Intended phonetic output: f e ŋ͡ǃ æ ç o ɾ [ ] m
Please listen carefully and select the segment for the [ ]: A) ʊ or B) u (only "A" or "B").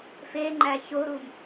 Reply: B